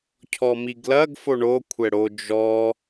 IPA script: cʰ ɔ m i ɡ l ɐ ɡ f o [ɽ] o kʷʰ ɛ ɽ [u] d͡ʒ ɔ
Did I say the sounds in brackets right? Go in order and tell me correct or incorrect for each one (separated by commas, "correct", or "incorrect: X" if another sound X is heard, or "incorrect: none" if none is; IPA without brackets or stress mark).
incorrect: ɳ, incorrect: o